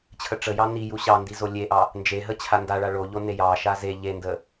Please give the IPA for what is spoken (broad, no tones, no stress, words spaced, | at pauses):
t͡ɕʰəʈ͡ʂəjɑ niju ɕɑndi zolʲeʔɑ | nd͡ʒeɦə t͡ɕʰandaɭa ɭoʎo nejɑʃa ze ʎendə